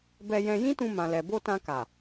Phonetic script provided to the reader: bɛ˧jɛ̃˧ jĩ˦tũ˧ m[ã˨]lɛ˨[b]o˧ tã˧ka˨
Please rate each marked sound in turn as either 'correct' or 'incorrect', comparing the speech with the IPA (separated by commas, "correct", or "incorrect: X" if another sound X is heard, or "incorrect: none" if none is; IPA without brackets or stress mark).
correct, correct